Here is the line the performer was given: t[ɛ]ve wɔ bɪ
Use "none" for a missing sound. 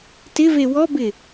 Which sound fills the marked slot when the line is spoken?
ɪ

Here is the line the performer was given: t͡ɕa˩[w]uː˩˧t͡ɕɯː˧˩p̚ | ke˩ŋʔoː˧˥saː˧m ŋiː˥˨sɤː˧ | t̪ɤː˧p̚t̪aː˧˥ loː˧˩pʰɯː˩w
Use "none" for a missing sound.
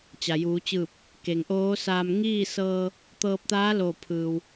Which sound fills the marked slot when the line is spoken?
j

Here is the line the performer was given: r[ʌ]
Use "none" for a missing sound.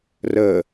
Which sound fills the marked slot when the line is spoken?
ə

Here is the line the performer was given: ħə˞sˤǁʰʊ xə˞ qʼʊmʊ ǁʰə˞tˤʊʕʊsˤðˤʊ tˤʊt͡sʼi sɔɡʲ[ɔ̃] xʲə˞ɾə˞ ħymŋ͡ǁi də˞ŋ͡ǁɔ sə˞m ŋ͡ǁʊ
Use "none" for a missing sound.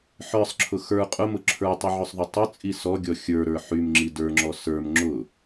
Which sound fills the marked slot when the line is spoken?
ɔ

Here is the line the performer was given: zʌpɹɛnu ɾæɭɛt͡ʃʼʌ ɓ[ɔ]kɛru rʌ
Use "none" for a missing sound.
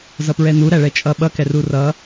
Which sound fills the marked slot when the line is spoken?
ʌ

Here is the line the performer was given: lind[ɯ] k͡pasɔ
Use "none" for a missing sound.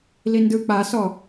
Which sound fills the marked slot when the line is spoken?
ɯ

